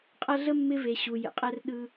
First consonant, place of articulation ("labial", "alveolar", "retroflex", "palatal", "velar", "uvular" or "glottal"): uvular